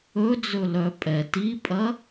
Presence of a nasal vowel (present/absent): absent